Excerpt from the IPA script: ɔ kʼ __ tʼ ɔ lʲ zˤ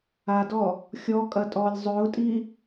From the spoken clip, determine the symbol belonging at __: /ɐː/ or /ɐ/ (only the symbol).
ɐ